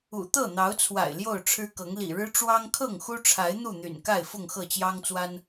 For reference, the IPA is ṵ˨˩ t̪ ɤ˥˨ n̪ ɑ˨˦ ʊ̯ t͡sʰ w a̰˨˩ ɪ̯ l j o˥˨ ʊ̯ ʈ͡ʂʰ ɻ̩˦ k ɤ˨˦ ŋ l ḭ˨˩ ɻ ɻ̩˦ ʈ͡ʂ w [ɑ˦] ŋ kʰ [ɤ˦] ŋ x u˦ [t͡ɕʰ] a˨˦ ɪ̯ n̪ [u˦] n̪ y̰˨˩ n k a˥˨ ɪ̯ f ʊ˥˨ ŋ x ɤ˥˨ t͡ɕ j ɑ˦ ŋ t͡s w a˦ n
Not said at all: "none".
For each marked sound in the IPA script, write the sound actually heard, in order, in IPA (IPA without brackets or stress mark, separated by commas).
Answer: ɑ˦, ɤ˥˨, ʈ͡ʂʰ, u˥˨